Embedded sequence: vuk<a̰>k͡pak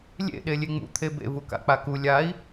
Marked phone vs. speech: correct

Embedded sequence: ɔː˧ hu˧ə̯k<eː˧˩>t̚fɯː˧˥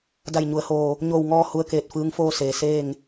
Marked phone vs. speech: correct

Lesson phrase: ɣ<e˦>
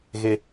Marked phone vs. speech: correct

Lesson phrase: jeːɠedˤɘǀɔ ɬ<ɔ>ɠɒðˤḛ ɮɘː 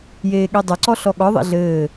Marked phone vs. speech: correct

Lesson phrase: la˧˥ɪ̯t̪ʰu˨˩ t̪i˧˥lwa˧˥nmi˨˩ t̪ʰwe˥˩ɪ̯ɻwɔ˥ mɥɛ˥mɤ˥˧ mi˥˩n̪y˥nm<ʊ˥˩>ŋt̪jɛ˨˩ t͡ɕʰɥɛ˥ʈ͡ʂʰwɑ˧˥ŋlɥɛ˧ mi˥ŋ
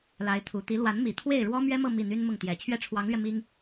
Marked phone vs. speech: correct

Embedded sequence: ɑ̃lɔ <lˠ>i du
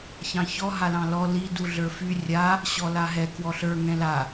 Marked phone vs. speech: incorrect: l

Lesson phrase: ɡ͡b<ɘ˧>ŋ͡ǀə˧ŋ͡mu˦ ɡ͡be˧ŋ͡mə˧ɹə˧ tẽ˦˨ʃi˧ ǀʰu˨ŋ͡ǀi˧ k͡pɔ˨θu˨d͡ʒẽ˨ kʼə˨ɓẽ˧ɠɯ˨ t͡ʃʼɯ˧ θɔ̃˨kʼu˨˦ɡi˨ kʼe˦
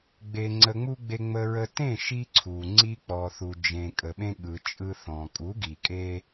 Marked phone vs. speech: incorrect: e˧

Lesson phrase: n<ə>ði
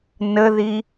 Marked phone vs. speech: correct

